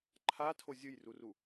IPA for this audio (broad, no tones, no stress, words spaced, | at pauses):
ǃʰatʰo zʲɯjruru